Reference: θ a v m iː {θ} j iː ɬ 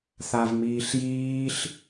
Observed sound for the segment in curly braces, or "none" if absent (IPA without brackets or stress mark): ɬ